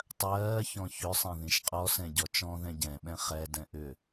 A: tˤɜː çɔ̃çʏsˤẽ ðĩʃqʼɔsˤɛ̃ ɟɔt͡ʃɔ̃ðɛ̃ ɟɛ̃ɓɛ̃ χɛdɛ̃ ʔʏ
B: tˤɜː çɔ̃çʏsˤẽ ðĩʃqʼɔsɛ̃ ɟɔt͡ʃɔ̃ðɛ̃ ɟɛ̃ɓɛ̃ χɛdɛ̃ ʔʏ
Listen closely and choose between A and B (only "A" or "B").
B